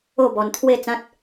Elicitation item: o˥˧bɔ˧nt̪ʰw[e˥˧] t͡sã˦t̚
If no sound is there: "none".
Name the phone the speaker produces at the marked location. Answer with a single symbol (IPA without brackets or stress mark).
e˥˧